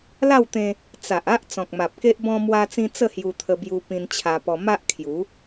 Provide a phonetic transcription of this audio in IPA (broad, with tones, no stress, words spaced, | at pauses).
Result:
la˥˧wt̪ẽ˧ | t͡sa˨ʔa˦ʔ t͡sɔ̃˨k̚ma˨p̚ke˦ʔ bɔ̃˦mwa˦t͡sĩ˦ t͡sə˥˧hju˧t̪ʰə˧ bju˧ pĩ˧nt͡ɕʰa˧pɔ˧ ma˦ʔkʰju˨˦